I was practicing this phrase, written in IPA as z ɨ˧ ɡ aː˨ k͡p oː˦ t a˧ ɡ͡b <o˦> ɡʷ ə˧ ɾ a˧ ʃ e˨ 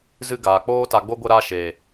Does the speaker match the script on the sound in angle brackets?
yes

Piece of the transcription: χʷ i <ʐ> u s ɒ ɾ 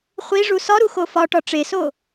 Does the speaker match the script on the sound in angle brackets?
yes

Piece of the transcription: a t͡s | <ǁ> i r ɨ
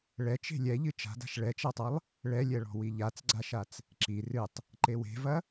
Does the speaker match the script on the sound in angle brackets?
yes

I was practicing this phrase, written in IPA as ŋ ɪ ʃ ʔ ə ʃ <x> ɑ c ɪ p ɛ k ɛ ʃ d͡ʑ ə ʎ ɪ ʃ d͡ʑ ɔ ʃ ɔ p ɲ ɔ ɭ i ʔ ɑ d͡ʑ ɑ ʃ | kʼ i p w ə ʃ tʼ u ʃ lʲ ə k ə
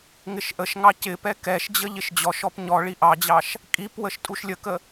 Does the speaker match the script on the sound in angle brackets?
no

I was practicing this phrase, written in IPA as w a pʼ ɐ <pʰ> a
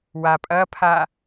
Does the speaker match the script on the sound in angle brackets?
yes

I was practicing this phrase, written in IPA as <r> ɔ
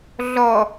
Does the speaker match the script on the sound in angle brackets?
no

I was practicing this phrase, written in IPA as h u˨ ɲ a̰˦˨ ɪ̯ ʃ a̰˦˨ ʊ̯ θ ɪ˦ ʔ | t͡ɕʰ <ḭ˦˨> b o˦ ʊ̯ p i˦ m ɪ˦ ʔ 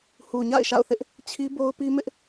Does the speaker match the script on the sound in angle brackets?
no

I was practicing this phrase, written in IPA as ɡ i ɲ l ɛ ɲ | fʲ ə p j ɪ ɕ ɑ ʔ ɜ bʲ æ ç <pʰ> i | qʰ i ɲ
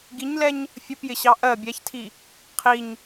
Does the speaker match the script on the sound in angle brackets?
no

